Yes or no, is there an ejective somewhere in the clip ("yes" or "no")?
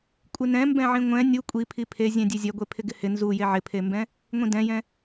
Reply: yes